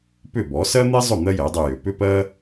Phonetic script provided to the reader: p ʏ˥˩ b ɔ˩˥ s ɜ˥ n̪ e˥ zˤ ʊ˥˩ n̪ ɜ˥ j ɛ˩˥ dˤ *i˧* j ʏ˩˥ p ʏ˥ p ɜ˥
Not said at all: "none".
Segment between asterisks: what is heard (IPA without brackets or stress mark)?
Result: i˧